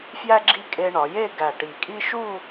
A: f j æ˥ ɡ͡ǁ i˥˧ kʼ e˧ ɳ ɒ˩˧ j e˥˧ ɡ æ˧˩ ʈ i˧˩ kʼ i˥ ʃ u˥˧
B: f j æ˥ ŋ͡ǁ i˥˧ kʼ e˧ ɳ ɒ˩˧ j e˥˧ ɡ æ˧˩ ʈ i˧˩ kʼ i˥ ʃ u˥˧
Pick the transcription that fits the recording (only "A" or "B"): A